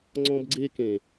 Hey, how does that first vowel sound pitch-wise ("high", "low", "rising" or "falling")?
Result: high